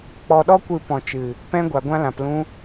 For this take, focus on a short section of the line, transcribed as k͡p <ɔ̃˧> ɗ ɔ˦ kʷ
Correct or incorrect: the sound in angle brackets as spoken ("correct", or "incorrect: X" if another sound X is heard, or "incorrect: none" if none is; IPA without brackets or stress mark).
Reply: incorrect: ɔ˧